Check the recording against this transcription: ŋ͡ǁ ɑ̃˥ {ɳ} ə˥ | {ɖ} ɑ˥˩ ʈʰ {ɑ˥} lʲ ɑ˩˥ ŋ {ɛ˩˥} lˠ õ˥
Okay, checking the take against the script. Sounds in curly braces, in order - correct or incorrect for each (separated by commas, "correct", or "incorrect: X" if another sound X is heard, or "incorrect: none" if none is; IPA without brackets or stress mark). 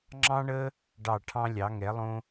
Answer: correct, correct, incorrect: ɑ̃˥, correct